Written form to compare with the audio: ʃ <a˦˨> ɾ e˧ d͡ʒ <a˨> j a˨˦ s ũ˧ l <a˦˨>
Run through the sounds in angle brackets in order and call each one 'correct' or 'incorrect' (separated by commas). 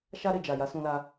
incorrect, correct, incorrect